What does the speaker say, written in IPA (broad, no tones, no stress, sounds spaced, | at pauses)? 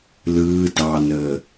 l ɯː d ɑ n əː